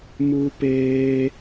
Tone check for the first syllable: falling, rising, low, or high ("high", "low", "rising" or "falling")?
high